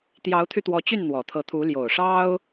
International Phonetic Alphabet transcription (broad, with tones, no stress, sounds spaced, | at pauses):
t̪ j ɑ˧˥ ʊ̯ t̪ʰ y˧ t̪ w ɔ˧˥ t͡ɕ y˥˩ n n̪ w ɔ˨˩ t̪ʰ ɤ˧˥ t̪ʰ u˧˥ l j o˨˩ ʊ̯ ʂ ɑ˥ ʊ̯